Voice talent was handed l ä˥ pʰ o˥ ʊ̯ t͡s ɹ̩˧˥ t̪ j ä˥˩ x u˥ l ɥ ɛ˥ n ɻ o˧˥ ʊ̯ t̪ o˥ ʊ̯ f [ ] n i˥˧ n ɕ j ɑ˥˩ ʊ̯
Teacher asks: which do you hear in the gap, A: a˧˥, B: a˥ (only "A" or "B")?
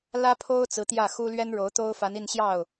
A